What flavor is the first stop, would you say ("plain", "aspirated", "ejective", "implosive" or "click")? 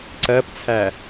click